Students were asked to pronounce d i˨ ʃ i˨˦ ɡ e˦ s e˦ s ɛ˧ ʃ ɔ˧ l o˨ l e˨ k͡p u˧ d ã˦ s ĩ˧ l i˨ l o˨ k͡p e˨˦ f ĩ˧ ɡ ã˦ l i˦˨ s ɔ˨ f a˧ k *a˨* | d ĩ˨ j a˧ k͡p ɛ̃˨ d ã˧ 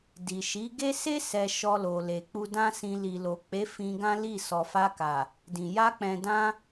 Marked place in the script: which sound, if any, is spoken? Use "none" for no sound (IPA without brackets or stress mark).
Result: a˨